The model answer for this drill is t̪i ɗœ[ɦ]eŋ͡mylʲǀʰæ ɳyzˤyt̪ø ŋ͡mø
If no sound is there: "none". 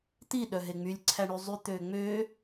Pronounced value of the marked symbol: ɦ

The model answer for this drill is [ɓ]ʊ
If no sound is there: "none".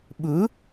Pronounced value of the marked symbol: ɓ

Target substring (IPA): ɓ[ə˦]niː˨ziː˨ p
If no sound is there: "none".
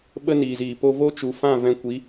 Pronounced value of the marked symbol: ə˦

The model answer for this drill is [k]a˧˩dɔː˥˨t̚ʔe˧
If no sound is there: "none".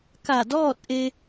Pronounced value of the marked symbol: k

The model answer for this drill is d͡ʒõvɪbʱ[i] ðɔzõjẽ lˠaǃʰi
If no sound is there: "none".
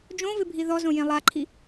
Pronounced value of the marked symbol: i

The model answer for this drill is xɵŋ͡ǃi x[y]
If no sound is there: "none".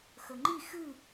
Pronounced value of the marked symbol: ɨ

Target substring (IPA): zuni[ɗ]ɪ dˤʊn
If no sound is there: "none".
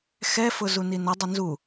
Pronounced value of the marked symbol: n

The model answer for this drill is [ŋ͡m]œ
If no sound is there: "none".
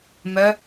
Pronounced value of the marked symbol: m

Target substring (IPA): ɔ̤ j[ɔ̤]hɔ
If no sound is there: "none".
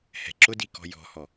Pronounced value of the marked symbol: ɔ̤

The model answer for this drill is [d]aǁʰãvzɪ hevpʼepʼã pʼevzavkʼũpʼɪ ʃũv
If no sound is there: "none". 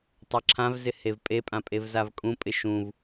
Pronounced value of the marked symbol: tˤ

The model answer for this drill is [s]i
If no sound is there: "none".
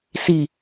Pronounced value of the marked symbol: s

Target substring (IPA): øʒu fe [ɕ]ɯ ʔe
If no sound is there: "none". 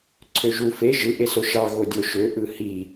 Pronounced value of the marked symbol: ʒ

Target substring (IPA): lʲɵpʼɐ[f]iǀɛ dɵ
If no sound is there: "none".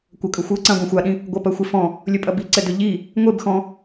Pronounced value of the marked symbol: b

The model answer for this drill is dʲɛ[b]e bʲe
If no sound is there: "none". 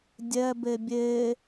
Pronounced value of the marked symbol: b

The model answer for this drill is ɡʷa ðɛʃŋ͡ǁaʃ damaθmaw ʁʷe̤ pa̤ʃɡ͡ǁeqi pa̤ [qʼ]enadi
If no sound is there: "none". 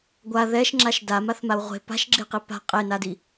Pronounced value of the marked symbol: qʼ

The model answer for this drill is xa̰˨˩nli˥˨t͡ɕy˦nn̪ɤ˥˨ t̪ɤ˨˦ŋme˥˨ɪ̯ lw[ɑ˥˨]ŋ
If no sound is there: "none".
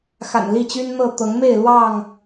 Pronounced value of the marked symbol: ɑ˥˨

